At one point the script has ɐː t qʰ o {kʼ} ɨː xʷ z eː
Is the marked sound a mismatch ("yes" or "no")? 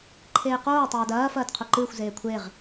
yes